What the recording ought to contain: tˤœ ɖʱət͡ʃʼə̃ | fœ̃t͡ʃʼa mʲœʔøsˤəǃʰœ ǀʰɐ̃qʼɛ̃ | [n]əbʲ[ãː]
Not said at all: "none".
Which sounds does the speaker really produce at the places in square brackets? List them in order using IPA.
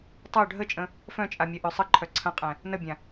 n, ã

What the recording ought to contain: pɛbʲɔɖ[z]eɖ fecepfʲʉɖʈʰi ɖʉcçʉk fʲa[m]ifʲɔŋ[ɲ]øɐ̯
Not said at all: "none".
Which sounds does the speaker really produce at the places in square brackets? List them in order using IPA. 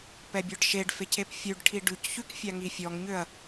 ʃ, ŋ, ɲ

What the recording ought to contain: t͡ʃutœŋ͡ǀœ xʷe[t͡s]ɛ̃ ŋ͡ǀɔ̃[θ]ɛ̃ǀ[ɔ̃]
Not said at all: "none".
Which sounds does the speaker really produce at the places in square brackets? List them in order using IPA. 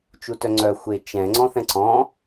t͡ʃ, θ, ɔ̃

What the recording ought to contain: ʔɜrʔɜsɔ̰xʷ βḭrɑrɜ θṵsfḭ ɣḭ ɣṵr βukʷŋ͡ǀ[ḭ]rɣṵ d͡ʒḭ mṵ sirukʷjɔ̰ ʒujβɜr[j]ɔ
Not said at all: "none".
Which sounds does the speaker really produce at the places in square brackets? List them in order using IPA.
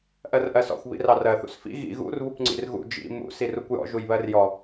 ḭ, j

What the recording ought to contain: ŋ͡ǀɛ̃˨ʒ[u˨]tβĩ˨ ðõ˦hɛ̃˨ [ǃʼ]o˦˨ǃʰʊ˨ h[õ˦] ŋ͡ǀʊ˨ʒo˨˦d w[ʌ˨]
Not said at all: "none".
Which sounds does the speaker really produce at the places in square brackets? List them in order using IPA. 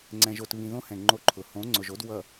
o˨, ŋ͡ǃ, õ˨˦, ʌ˨

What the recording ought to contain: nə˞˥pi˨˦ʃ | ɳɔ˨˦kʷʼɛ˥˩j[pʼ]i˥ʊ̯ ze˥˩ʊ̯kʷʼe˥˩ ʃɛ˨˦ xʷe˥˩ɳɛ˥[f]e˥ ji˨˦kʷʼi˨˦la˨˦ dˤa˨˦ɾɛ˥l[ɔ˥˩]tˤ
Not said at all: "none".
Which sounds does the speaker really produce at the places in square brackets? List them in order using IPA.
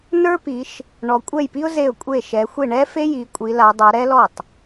p, f, ɔ˥˩

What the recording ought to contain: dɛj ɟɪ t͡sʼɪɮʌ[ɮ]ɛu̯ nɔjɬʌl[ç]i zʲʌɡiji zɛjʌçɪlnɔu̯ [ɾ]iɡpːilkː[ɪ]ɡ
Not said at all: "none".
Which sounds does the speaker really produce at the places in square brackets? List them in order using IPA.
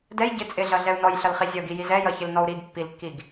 ɮ, χ, ɾ, i

